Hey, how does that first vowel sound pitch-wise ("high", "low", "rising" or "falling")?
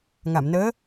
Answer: low